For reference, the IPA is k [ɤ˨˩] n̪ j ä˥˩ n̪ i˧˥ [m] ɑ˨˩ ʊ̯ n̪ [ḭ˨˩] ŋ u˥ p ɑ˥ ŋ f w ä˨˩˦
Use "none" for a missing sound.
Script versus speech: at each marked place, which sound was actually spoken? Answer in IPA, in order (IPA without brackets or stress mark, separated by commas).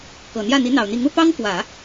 ɤ˨˩, n̪, i˧˥